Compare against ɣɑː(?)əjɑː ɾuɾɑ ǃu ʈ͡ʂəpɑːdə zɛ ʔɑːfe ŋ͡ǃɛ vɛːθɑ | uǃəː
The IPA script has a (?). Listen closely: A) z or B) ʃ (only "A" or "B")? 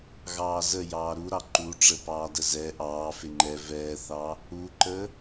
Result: A